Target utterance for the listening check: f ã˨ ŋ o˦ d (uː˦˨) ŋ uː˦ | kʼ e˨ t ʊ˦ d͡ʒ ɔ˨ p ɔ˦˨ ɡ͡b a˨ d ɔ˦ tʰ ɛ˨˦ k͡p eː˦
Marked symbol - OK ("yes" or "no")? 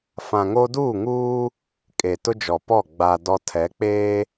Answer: yes